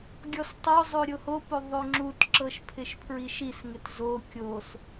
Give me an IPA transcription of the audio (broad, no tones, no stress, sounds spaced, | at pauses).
ɡʲ ɔ s tˤ o zˤ o ɾʲ o h o p o ðˤ o ŋ͡ǁ u t ǁ ɤ ʃ pʰ ɪ ʃ pʰ ɹ i ʃ i s ŋ ɪ t z o kʲ o s